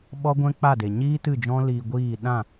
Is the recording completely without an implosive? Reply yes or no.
no